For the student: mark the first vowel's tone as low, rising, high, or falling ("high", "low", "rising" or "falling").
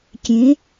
rising